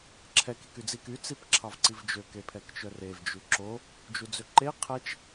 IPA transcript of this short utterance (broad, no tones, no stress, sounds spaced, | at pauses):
ǁʰ ɛ k i k y d͡z i k y t͡s i p ǁʰ ɑ v ǀ i v d͡ʒ ø k e pʰ ɛ k t͡ʃ œ r e v d͡ʒ ʉ ǁ o | d͡ʒ u d͡z ø ǃ e qʰ ɛ t͡ʃ